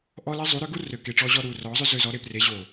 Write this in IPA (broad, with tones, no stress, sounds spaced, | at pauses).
ʔ ɔ˦ l e˦ zˤ u˨˦ ɾ ø˦ ɡ u˦ r ø˨ k e˨ ʈ͡ʂ ɔ˧ ʑ ɔ˧ ɾ u˨ r ɔ˨˦ zˤ ø˦ z ø˧ z ɔ˨˦ ɾ e˧ p r e˨˦ ʑ o˨